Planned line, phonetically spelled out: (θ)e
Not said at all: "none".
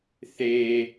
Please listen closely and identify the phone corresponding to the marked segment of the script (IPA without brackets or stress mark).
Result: θ